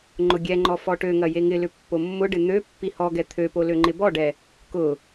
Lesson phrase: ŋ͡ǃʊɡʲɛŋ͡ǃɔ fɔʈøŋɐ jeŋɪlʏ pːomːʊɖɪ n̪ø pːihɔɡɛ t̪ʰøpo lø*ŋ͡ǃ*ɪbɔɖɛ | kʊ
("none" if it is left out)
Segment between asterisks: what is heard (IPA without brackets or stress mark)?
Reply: ŋ͡ǃ